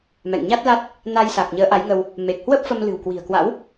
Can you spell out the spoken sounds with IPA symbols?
m ɛ̰˧˨ ŋ ɲ a˦˥ t̚ l a˦˥ t̚ | n a˧ j s a˨˩ k̚ ɲ əː˨˦ ʔ a˨˦ j ŋ ə˧ w | m e˨˩ k̚ h w ə˦˥ p̚ f ə˧ m l ɨ̤˨˩ w k w i̤˨˩ ə̯ k w a̰˧˥ w

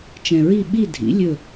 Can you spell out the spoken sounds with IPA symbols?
t͡ʃ ɛ̃˨ ɹ i˦˨ ɓ i˦˨ dʱ ḭ˩˥ lʲ ɵ˦˨

